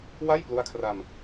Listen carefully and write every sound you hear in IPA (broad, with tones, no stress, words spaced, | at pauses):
wa˥˩jplu˦˥a̯kʰra˧m